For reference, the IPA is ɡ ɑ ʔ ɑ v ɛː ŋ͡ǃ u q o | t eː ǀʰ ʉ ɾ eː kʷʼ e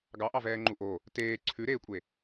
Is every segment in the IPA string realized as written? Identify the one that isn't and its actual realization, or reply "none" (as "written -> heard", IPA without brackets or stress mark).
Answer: q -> ʔ